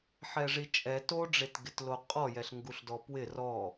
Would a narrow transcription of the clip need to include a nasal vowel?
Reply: no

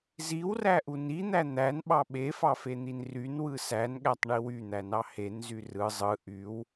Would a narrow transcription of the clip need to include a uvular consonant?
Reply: no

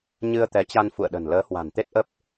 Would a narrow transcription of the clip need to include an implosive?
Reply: yes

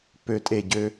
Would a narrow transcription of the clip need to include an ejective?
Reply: yes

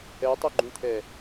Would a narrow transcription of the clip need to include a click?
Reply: yes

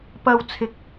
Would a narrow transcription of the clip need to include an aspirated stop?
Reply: yes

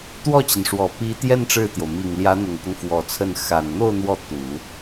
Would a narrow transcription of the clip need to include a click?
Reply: no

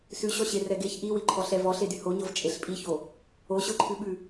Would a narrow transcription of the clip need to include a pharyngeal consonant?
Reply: no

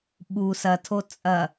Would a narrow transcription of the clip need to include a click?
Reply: no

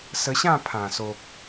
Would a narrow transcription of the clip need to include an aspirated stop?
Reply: yes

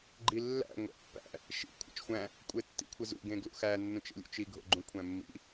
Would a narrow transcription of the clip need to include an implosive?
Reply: no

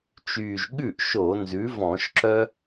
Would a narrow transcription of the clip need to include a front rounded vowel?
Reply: yes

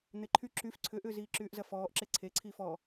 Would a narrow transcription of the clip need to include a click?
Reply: yes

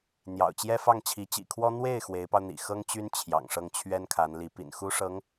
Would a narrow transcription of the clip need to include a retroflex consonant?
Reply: yes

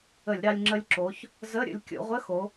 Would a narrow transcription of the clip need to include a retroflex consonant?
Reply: no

